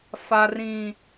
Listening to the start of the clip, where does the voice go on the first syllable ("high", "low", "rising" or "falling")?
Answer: high